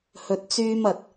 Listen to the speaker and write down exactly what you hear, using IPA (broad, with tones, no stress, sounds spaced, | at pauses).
h ɵ˧ t̚ t͡s yː˥ m ɐ˧ t̚